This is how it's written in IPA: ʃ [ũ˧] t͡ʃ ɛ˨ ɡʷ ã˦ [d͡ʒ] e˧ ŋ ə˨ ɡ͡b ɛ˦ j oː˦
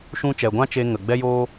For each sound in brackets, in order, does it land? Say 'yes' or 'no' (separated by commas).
yes, no